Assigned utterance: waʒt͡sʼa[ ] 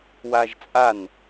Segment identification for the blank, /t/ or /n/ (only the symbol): n